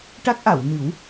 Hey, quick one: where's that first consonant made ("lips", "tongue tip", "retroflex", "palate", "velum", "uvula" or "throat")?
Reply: retroflex